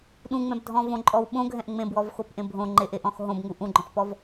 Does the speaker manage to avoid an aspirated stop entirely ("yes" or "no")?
yes